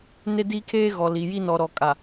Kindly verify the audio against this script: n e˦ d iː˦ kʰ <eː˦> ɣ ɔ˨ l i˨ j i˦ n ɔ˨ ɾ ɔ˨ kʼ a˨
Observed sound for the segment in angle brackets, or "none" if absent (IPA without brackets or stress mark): eː˦